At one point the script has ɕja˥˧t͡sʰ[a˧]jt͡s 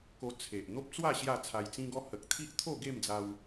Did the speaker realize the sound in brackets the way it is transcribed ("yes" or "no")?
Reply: yes